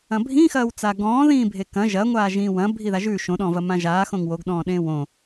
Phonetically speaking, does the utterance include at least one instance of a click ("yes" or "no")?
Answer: no